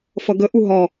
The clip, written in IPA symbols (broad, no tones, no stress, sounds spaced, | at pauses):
f ʌ ɡ ə ʔ u ɦ ɒ